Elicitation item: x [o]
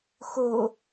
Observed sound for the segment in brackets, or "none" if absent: o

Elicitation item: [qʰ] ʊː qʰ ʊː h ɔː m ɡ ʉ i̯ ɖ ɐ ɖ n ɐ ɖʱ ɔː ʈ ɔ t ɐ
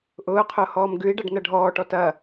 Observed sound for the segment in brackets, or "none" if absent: ʔ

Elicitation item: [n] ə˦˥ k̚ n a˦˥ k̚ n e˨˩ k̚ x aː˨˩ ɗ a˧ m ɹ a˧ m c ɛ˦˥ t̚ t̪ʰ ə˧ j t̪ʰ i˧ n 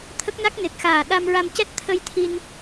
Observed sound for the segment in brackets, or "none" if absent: t̪ʰ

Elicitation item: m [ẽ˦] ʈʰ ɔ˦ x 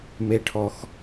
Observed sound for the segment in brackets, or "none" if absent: e˦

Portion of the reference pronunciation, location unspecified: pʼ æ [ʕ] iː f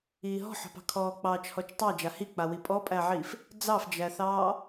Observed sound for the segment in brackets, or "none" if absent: ʕ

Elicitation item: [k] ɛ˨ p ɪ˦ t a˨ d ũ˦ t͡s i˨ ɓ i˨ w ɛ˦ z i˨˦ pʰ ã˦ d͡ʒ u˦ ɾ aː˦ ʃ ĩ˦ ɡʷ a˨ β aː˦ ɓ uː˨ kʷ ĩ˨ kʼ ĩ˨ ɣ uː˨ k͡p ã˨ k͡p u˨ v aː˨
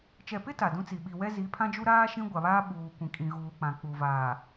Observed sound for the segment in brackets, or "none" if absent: t͡ʃ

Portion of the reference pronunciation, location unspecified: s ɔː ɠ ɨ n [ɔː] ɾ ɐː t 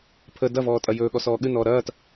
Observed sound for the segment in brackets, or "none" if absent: ɔː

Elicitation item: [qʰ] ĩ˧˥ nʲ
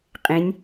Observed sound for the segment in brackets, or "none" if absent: qʼ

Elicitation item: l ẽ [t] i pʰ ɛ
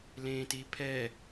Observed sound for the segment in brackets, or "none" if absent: t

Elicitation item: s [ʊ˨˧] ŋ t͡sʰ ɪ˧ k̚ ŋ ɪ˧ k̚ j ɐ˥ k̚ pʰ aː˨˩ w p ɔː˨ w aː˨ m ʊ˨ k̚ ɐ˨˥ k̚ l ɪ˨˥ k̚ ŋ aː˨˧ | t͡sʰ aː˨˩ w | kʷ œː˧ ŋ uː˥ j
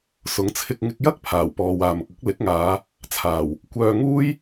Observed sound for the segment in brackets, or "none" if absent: ʊ˨˥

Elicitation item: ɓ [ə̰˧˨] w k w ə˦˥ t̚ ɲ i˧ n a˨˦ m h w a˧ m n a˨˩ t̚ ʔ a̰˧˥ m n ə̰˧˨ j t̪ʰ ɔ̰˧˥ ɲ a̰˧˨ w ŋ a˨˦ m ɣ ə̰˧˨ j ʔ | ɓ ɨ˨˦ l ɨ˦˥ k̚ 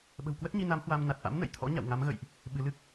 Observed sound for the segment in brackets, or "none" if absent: ə̤˨˩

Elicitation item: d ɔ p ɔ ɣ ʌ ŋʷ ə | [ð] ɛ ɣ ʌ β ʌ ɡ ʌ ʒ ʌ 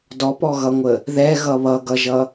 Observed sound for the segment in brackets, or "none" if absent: ð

